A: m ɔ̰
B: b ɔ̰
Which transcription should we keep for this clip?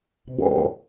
B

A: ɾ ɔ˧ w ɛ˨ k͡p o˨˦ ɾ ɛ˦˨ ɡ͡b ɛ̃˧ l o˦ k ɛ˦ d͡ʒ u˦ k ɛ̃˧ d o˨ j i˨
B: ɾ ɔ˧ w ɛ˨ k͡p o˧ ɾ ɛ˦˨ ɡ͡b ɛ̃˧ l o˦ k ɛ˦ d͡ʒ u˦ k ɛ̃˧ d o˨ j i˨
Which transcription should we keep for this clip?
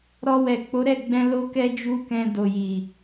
A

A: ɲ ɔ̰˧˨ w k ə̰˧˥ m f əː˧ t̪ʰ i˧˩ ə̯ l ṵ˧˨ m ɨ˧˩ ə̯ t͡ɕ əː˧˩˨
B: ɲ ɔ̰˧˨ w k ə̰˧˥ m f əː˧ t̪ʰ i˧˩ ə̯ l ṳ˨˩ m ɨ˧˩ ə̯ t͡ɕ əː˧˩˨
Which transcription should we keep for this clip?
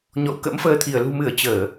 B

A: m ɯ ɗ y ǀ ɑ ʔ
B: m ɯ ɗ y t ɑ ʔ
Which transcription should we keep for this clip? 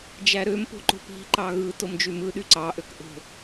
A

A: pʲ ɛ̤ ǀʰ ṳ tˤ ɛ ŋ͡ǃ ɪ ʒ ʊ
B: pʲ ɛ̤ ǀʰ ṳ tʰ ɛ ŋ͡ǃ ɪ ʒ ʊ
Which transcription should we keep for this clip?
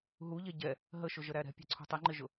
A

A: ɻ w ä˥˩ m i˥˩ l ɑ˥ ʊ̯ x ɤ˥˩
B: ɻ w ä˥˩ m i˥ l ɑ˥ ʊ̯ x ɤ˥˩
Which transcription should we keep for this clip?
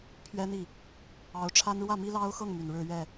B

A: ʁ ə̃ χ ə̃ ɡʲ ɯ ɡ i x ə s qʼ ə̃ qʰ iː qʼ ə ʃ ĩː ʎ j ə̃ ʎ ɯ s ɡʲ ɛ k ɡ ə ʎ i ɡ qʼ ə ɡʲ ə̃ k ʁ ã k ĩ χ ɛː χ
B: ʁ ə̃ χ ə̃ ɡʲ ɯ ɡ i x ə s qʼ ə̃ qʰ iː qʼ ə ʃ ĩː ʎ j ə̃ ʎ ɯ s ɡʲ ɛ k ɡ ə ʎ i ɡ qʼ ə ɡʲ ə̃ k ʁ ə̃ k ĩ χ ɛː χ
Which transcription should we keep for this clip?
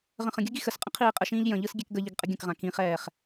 A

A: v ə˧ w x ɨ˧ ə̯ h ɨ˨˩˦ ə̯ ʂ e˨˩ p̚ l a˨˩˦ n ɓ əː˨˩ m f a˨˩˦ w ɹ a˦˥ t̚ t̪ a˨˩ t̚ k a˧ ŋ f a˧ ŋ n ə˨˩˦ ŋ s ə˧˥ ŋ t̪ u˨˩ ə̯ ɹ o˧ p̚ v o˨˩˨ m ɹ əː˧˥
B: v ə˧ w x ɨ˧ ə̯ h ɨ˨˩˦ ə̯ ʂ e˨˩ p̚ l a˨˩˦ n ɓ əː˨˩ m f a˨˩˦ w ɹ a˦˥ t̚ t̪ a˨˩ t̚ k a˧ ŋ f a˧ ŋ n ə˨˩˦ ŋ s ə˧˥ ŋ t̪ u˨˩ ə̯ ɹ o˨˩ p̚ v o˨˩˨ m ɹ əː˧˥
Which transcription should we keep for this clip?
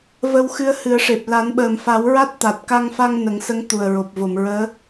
B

